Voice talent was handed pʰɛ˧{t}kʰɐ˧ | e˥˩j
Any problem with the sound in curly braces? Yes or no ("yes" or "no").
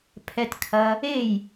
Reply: no